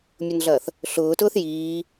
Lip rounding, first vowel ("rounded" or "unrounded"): rounded